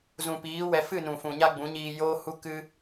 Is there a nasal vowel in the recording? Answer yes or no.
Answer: yes